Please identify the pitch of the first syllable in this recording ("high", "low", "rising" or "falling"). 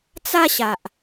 high